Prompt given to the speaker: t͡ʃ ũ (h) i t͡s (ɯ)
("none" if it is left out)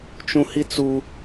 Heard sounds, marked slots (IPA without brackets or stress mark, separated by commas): h, u